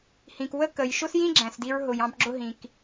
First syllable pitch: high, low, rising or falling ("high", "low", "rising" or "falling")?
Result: low